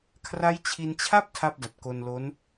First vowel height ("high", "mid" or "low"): low